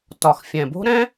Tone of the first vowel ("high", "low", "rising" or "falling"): low